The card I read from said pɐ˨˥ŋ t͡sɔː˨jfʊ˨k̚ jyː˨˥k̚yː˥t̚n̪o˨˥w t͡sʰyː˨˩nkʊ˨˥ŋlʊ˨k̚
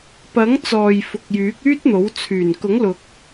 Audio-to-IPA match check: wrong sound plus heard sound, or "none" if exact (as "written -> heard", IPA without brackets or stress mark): none